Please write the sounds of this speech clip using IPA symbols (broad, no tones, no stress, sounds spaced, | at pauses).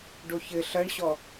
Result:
ɖ o ç ɘ ɬ ɐ ɳ ɕ ɔ